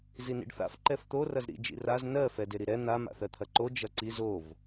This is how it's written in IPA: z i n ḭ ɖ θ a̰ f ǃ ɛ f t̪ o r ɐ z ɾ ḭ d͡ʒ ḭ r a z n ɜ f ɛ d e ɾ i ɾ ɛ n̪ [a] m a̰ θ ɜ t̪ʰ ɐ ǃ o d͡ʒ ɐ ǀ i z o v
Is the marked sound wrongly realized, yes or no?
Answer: no